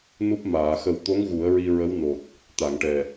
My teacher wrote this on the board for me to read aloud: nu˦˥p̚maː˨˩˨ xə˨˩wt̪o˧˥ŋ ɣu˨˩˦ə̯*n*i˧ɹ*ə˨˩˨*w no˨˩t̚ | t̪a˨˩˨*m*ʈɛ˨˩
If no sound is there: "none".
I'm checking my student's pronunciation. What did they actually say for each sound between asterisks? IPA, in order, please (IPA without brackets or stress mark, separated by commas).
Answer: ɹ, ə˧˥, ŋ